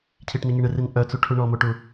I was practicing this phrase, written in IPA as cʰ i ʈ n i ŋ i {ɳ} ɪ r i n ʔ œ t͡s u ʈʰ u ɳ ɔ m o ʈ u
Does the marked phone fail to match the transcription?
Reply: no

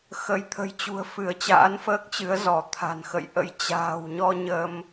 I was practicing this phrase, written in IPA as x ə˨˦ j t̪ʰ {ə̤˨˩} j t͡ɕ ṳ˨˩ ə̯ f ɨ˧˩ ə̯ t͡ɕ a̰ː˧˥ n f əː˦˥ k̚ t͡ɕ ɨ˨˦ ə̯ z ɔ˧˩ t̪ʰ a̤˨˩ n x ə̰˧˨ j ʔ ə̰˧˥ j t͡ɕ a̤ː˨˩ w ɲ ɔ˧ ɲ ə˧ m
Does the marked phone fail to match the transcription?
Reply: no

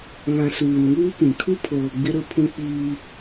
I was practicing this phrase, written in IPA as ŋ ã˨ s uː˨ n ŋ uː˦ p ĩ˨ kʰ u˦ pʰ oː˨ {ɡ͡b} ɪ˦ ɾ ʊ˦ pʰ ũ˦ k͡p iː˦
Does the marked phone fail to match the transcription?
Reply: no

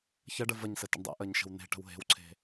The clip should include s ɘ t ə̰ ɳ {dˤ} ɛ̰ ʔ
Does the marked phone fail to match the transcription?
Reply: no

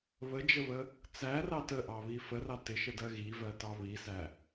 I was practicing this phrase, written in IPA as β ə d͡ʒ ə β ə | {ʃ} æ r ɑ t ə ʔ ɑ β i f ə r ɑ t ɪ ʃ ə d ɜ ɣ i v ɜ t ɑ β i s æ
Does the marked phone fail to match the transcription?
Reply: yes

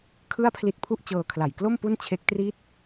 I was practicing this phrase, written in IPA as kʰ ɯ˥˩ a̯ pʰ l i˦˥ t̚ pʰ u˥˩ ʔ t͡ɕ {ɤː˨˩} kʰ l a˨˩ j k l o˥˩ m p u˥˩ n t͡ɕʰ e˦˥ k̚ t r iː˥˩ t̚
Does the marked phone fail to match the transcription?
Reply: yes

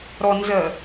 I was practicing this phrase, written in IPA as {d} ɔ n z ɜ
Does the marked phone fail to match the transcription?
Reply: yes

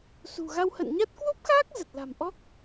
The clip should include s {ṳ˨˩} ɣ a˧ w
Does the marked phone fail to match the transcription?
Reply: no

